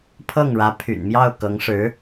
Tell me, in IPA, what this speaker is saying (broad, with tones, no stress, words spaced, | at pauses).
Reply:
pʰɤ˥˩ŋɻä˧˥pʰy̰˨˩nmjɑ˥˩ʊ̯ kɤ˧˥ŋʂɻ̩˧˥